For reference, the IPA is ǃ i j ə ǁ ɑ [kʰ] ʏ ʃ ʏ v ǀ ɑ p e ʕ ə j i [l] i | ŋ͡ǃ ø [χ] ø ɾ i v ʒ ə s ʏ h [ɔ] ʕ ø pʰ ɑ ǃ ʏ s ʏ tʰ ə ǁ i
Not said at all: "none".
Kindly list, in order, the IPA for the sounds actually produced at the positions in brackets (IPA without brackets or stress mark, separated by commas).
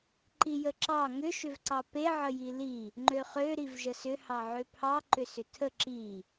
ŋ, l, χ, ɑ